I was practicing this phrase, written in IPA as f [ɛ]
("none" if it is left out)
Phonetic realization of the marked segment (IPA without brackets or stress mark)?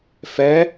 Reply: ɛ